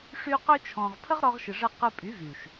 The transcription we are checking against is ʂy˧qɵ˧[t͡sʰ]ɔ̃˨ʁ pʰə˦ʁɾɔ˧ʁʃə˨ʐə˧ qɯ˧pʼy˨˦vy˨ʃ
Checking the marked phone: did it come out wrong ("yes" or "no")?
yes